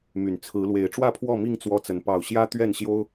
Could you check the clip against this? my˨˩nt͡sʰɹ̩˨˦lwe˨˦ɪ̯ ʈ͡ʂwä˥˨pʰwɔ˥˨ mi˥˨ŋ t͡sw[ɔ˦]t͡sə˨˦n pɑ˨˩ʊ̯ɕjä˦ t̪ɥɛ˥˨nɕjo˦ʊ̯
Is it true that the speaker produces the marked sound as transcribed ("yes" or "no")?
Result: yes